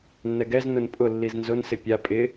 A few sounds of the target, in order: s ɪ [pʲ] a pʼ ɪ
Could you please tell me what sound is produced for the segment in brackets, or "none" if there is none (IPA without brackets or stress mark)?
pʲ